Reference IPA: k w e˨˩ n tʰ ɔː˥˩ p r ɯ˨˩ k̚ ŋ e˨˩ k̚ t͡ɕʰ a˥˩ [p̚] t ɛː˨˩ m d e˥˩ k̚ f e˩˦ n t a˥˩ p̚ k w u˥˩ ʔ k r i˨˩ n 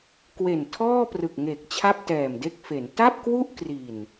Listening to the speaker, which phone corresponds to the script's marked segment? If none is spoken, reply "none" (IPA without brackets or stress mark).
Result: p̚